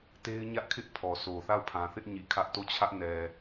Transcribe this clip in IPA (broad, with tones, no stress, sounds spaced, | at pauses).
t e˦ ɪ̯ ɲ ä˦ ʔ kʰ ɪ˦ ʔ pʰ ɔ˨ s o˨ θ a˦˨ ʊ̯ pʰ ã˨ θ ɪ˦ ʔ ɲ i˨ kʰ ä˦ ʔ t o˦˨ t͡ɕʰ ä˦ ʔ n ɛ˨